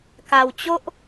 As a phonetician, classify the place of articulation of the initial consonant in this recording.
velar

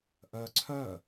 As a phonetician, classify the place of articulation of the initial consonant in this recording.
glottal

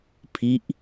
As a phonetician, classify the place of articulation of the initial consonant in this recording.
labial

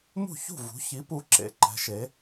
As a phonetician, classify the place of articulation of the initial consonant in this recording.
labial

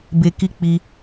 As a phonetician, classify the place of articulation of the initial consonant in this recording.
labial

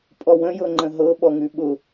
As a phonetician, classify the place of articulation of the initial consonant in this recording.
labial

